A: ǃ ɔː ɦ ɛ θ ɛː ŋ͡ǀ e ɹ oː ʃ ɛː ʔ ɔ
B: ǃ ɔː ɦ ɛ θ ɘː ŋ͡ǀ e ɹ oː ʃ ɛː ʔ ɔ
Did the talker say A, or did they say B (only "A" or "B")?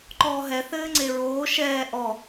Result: B